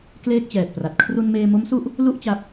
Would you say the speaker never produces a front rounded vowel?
yes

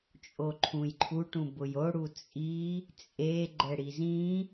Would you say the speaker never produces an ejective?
no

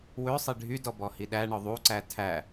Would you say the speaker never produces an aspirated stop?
no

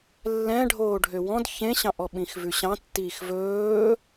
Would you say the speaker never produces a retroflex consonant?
no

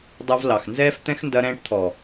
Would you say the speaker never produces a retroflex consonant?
no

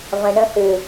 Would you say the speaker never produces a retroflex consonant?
no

